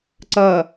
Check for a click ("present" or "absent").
present